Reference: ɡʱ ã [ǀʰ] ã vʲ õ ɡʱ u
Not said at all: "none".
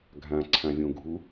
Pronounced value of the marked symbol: ǀʰ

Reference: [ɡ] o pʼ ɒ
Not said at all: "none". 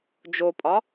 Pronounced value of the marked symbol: d͡ʒ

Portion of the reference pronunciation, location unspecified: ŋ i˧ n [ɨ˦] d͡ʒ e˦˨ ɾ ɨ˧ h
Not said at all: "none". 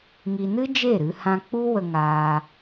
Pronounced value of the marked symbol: ɨ˦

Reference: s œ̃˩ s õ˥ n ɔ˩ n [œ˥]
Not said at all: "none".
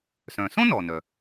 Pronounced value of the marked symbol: œ˩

